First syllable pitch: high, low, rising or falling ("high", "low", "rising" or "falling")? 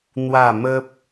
falling